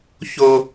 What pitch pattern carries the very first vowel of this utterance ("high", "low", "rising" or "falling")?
high